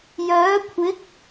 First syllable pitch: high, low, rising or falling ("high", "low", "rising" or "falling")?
rising